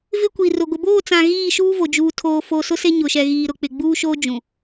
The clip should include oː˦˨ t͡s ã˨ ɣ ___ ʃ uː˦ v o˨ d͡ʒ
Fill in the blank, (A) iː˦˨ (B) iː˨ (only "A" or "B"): A